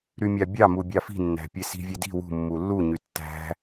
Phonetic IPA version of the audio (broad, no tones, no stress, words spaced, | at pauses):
ɾymʲɑbʲɑ mubʲɑfi̤ nːæ̤pʲesi̤ vʲedi̤ wṳ mːulːu ɲytːæ̤